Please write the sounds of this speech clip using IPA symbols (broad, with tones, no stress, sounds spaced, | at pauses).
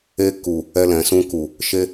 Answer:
e˧ k u˨ | ɛ˧ l ɛ̃˨ s ũ˧ k u˨ | ʃ e˦